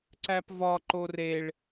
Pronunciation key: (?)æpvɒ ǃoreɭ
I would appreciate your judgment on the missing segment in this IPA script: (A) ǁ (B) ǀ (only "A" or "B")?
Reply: B